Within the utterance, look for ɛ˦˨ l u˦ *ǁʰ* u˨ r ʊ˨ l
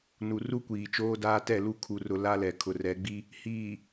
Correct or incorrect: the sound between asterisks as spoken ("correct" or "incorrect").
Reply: incorrect